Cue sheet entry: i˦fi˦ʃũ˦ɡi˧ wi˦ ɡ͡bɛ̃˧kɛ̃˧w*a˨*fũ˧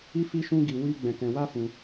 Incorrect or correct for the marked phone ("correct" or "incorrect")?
incorrect